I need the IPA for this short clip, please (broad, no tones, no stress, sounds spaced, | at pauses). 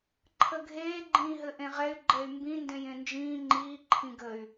ǃʰ ə ɡʱ eː ɡ͡ǃ ĩː ɦ ɘ ʔ ẽ ʁ ɛ y̯ ɡ͡ǃ ɛ y̯ m b ĩ n d ẽ j ẽ n d͡ʒ ĩː ŋ͡ǃ iː ǃʰ ĩ ɡ ə y̯